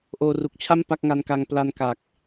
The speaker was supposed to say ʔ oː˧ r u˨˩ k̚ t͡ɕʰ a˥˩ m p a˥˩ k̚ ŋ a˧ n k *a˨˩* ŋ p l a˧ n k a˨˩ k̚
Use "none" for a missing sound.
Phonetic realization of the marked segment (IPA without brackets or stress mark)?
a˧